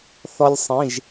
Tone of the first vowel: high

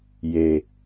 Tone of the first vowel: low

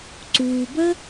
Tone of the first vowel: low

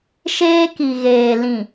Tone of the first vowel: high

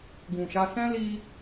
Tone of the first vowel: low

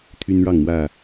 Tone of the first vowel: high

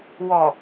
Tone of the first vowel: low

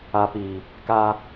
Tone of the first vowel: low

